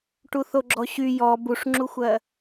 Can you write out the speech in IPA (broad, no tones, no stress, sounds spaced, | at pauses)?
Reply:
ʈ u θ o ɡ͡ǁ ɔ ɕ y j ɔ b u ʂ ŋ͡ǁ u xʷ ɜ